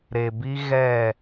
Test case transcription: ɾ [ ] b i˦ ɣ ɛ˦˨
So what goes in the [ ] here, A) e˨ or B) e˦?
A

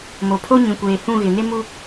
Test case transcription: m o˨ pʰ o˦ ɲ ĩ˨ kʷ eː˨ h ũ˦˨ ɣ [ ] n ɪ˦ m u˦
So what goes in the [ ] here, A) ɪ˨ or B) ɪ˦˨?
A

